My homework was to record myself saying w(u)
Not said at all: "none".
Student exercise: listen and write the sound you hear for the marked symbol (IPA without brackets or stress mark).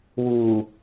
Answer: u